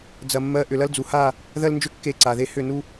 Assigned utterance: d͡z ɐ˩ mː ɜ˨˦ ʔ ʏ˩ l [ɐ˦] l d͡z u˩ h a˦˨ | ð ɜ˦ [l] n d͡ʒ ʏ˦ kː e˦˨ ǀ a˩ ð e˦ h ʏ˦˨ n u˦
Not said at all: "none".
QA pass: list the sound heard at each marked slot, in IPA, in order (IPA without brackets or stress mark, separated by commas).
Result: ɐ˦, l